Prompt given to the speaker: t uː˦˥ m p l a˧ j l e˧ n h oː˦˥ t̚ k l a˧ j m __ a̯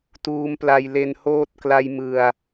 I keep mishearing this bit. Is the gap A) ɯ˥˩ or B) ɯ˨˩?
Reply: B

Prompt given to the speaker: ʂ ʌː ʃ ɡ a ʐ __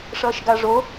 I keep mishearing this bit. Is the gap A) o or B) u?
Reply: A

